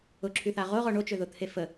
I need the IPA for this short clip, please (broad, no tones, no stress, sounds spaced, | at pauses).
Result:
ʊ ǁʰ y θ a ʁ o ʁ ɔ ɳ o t͡ʃ ø ð ʊ t̪ʰ e f ə